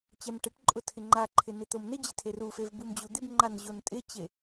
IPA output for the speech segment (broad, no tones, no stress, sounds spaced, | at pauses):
t͡ɕ ɛ m ʈ e ʈ ǃʼ ʊ tʰ ɪ ŋ͡ǃ a ǃʰ ɪ n ɪ t̪ o m n ɪ d͡ʑ ɪ tʰ e r u f e v b u m d͡ʑ u d̪ ɪ b ŋ͡ǃ a n ʑ o n tʼ ɪ t͡ɕ e